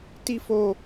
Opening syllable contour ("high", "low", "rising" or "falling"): high